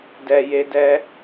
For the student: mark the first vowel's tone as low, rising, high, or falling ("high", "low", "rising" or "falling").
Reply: low